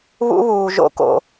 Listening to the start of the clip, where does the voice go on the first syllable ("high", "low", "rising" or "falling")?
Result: high